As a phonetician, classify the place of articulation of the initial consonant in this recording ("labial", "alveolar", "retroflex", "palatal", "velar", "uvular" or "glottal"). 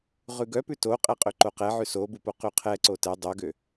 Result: uvular